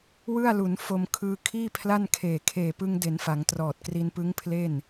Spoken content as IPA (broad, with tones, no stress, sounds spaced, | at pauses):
w ɯ˥˩ a̯ l u˩˦ n f o˧ m kʰ ɯː˧ kʰ iː˥˩ pʰ l a˥˩ n kʰ eː˨˩ kʰ eː˨˩ p ɯ˧ ŋ d e˩˦ n f a˩˦ ŋ t r ɔː˨˩ t̚ k r i˧ n p ɯ˦˥ ŋ pʰ l e˥˩ n